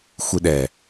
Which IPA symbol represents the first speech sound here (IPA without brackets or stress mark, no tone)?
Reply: xʷ